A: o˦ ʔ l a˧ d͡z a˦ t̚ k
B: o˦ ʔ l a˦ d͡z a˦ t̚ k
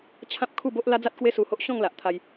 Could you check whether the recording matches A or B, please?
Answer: B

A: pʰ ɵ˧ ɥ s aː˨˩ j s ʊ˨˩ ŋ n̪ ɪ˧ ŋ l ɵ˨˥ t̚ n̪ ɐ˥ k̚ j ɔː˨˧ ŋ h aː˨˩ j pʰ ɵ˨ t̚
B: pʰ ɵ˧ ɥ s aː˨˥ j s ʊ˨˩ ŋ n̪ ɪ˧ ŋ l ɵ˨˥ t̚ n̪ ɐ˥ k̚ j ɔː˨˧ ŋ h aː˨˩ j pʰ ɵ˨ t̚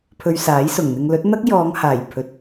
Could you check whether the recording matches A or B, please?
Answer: B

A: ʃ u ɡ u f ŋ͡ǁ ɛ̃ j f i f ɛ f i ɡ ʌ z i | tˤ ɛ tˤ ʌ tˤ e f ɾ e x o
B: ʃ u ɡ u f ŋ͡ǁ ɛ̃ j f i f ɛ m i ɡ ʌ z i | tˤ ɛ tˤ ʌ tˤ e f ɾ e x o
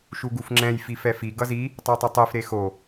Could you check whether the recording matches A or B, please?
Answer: A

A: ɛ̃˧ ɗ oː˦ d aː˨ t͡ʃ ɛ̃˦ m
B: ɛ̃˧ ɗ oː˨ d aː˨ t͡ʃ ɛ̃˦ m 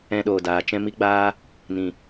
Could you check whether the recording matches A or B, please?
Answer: B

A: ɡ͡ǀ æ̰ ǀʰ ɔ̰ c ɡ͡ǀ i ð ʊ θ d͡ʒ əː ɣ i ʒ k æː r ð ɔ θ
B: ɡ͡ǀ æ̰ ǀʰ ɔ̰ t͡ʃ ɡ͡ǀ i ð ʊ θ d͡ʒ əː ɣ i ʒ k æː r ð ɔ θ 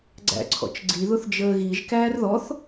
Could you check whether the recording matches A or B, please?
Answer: B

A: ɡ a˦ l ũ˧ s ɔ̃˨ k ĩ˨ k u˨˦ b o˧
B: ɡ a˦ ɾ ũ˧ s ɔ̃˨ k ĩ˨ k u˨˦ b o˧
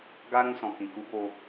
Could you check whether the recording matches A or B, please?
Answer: B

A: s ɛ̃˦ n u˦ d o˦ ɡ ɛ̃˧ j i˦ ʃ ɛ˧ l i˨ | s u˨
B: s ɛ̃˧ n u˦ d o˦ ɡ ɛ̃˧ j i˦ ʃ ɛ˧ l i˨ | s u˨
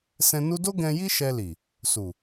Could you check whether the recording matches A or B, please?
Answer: B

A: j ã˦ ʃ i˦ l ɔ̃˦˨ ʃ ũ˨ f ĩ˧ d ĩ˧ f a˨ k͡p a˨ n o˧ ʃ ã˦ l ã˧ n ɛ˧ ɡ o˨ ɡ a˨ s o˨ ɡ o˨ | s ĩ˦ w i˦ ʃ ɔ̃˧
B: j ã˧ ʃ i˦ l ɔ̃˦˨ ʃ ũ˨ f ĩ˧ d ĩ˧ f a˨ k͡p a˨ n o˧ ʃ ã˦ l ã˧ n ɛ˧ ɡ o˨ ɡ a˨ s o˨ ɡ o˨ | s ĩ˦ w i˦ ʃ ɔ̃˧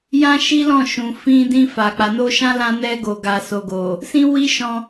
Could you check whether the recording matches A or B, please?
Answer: A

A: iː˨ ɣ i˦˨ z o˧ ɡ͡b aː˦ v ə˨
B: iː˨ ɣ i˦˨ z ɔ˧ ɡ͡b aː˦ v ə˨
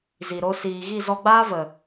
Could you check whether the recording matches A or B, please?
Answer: B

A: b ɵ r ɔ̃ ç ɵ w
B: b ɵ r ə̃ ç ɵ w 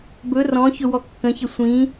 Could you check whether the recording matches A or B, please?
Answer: A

